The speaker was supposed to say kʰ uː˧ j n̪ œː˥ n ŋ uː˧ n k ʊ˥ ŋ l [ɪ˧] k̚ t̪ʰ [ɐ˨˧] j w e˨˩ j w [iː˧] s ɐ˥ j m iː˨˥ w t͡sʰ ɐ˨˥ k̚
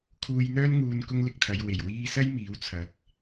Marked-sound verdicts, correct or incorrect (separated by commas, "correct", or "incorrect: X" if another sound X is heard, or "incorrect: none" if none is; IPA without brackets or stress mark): correct, correct, correct